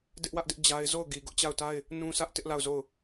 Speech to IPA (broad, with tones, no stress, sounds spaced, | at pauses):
d ɪ˦ ʔ w ä˦ ʔ d ɪ˦ ʔ d͡ʑ a˦ ɪ̯ z o˦˨ ʊ̯ ɡ i˨ ɡ ʊ˦ ʔ t͡ɕ a˦˨ ʊ̯ t a˦ ɪ̯ | n ũ˦ sʰ ä˦ ʔ t ɪ˦ ʔ l a˦˨ ʊ̯ z o˦˨ ʊ̯